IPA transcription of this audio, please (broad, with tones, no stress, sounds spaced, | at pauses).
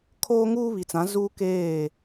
kʰ oː˦ ŋ uː˦ β i˨ t͡s ã˨˦ z uː˦ k eː˦˨